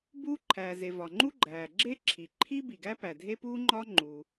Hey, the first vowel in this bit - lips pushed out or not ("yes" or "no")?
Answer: yes